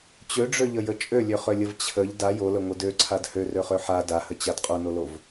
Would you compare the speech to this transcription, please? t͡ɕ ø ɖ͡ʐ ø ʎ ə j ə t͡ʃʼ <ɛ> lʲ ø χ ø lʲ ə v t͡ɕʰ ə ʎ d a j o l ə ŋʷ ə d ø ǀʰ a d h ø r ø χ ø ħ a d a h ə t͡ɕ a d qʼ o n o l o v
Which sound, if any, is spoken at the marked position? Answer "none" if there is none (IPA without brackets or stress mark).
ø